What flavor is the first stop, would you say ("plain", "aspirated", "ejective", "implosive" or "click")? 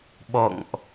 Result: implosive